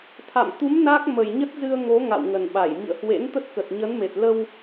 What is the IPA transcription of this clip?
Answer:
t̪ʰ a̰˧˨ m t̪ u˨˦ m n a˦˥ k̚ m ə˨˩ j ɲ ə˦˥ t̚ z ɨ˧ ə̯ ŋ o˨˦ ŋ a̰˧˨ w ŋ ə˨˩ n ɓ a˧˩ j m ḭ˧˨ ə̯ h w ḛ˧˥ n t̪ ə˦˥ t̚ k ə˨˩ t̚ ɲ ə˨˦ n m e˨˩ t̚ l ə˧ w

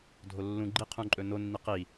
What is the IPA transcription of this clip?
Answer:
dʱ o lː ũ ɡ͡ǃ i qʰ ũ ǃʼ ɵ n o nː i q i

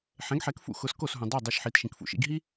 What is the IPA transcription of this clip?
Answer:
ħ ɛ̃˩˥ ɡ ħ ɛ˩˥ k f ṵ˥ x ʊ˩˥ s k o˥˩ s ɦ ũ˩ dˤ e˥˩ dˤ e˧ ʃ ħ i˩˥ t ʃ ĩ˩ k f ṵ˧ ʃ ḭ˧ ɡ ɦ i˥

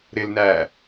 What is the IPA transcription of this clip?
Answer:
ɾ ɪ l n æː

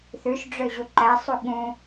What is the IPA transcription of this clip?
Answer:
θ ʉ ʃ ɖ͡ʐ ø ʑ u ǃ æ sˤ u ɠ ũ

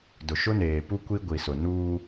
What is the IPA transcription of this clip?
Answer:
d ʊ˨ ʃ ʊ˦ n eː˨ p u˦ kʷ i˦ ɡʷ i˨ s ʊ˨ n uː˦

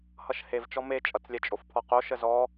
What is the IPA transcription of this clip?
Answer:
h ʌ ʃ h e v t͡ʃ ɔ m e t͡ʃʼ ʌ t͡s lʲ ɛ t͡ʃʼ o f pʰ ɔ q o ʃ ə z ɔ

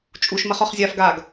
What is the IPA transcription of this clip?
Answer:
t͡ʃʼ u ʃ m ɐ χ ɔ χ zʲ a f ɡ a ɡ

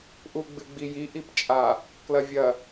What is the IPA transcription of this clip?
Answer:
ʔ u ɡ͡b ɨ ɡ͡b i j i ʔ i p t͡ʃʼ a | k l ɐ vʲ ɐ

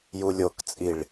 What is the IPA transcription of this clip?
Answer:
j u lʲ o k t͡sʼ i ɭ

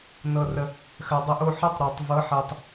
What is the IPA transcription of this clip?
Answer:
n ɤ˧ r ə˧ | x ɜ˨ dˤ ə˦˨ ʔ o˧ ħ ɤ˦ tˤ ɾ o˨ tˤ v ɤ˨˦ ħ ɜ˨ tˤ

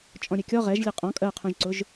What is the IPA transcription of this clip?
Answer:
t͡ʃʼ ɔ̃ ɾʲ ɛ kʲ ɔ ʁ ɛ ʒ lʲ ɛ qʼ ɔ̃ kʼ ɜ qʰ ũ ʒ ǀ ʊ ʒ

